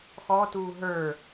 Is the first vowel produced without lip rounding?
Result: no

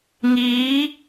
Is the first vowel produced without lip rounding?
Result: yes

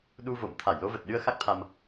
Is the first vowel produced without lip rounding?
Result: no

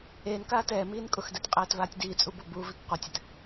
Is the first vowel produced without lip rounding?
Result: yes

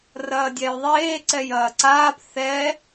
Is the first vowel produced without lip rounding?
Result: yes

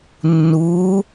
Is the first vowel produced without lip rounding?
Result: no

